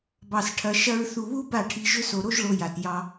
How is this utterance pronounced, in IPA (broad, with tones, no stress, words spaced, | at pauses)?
bɑ˦sʈʰɐ˦ ʃɐ˦ɹ θu˧βu˦ba˦˨ʈʰi˧ ʒʏ˦so˧ ɾo˦ʒɭo˧ja˨t jɑ˧